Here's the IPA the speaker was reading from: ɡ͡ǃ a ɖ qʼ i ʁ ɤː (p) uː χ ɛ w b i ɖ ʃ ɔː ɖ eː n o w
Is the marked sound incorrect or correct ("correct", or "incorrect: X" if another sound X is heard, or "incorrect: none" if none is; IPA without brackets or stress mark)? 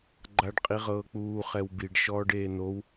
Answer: incorrect: k͡p